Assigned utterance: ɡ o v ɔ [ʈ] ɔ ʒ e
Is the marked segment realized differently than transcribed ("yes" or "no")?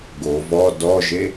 yes